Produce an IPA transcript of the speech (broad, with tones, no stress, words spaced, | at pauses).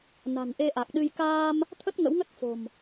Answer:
na̤˨˩nʔe˧ʔa˨˩k̚ɗɨ˧j kaː˧m | t̪ʰə˦˥t̚ŋə̰˧˥wŋə˦˥t̚ fo̤˨˩m